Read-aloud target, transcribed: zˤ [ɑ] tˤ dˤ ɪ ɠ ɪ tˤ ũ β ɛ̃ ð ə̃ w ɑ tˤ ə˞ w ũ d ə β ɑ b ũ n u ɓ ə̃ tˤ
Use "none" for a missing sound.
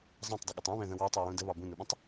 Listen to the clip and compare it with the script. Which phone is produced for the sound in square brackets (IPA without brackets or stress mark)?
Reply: ɑ̃